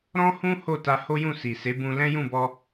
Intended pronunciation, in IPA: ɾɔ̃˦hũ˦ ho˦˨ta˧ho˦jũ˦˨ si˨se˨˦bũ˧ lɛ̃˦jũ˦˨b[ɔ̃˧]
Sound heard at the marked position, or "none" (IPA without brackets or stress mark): ɔ˧